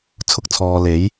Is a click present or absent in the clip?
absent